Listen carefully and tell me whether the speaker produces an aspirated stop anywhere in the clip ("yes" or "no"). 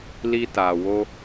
no